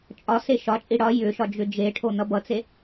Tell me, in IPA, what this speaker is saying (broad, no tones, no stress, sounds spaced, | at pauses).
t͡ʃʼ ɒ s e ʃ ɒ t͡ʃʼ i ɽ ɒ j ʏ ʃ ɒ d͡ʒ ʏ d͡ʒ e ʈʰ o n̪ ʌ b ʌ t͡s e